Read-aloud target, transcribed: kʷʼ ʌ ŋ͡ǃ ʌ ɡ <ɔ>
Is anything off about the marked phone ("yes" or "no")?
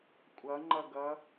yes